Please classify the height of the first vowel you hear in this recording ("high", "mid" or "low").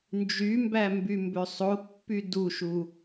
high